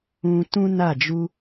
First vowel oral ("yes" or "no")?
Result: no